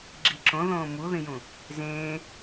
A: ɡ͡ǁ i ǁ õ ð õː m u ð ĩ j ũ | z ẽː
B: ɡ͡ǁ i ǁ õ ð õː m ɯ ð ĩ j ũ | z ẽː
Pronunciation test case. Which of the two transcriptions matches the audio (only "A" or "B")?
A